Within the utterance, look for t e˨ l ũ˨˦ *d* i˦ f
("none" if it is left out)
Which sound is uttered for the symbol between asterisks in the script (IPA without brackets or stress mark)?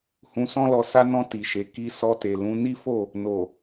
n